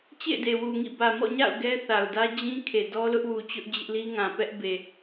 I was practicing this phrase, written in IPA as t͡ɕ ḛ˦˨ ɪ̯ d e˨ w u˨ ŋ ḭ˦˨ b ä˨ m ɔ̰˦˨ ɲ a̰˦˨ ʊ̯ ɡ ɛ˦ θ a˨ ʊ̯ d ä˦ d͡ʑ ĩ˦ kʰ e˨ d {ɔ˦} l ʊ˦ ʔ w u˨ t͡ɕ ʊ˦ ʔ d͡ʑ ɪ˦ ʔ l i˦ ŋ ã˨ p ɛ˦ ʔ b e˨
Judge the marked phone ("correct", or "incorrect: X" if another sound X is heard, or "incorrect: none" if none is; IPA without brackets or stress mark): correct